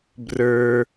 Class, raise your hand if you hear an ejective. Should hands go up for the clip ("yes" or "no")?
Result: no